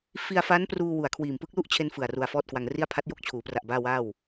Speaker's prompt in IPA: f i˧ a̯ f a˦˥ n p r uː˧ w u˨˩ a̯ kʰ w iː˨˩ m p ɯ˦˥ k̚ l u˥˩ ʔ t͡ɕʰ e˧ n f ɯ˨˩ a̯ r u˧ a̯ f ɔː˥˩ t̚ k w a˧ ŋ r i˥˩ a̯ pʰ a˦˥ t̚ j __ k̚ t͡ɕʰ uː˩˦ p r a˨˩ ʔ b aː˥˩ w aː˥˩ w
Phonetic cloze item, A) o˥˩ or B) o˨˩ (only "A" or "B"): A